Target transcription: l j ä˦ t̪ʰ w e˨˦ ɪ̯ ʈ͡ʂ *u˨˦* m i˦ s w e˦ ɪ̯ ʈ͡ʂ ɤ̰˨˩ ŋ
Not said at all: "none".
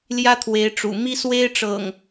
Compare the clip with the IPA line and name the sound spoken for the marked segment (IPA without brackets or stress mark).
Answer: ṵ˨˩